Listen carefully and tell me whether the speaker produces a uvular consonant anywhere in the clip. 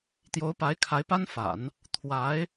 no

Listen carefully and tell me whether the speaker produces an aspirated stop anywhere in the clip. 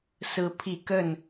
yes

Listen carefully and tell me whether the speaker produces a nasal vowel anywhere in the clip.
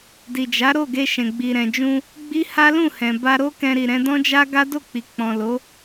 yes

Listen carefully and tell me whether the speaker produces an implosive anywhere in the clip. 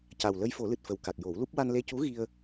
no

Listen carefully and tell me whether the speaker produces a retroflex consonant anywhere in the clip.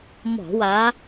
no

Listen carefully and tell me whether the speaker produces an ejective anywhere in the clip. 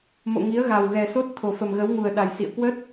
no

